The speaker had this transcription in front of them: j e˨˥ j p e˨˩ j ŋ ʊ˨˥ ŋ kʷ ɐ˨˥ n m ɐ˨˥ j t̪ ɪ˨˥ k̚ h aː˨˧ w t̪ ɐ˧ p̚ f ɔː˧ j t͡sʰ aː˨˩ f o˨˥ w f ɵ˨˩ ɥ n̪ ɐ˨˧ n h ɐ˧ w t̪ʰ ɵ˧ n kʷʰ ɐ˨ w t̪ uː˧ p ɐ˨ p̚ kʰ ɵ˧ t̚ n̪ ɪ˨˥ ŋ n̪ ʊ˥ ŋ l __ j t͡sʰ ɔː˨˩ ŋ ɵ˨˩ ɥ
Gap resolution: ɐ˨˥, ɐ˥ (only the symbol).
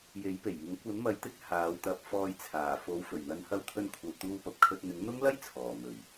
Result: ɐ˥